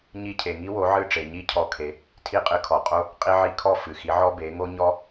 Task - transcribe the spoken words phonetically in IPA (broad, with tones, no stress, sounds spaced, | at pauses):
ɲ i˧ cʰ e˩ ŋ i˥ w o˩˥ ʕ ɨ˥˩ ʈ͡ʂ e˩ ɲ i˥˩ cʰ ɔ˧ kʰ e˩˥ | tʰ i˥˩ qʼ ɨ˧ kʰ ɔ˩ qʼ o˥ | qʼ i˧ ʕ i˧ kʰ ɔ˥˩ f ɨ˩ x i˩˥ ʕ ɔ˥ b e˩˥ ŋ o˥ ɲ ɔ˥